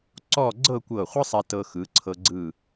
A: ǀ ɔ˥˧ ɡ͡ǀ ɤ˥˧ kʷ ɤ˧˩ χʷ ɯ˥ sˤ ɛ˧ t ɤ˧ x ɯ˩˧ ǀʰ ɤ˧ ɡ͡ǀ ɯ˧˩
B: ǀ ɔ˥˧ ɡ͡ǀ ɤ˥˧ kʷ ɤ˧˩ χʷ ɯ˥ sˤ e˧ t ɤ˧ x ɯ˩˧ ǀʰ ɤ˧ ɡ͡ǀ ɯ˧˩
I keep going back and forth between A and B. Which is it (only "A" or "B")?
A